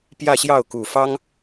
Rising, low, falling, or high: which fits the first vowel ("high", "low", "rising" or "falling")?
falling